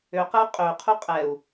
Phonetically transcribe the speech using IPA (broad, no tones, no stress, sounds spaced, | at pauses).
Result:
ø q ə u̯ qʼ ø qʰ u qʼ ɛ u̯